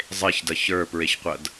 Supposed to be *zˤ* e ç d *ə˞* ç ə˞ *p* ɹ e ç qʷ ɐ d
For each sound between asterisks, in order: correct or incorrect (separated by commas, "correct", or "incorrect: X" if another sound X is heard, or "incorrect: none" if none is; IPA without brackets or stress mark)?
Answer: correct, incorrect: ɐ, correct